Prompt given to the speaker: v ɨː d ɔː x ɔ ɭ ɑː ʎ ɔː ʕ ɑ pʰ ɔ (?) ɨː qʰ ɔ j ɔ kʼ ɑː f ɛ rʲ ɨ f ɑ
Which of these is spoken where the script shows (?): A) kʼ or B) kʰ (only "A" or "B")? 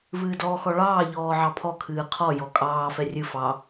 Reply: B